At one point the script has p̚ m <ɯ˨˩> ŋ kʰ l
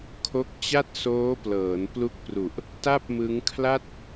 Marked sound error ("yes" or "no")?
yes